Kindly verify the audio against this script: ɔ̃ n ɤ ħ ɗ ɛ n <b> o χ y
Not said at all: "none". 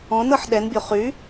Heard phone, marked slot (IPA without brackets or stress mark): bʲ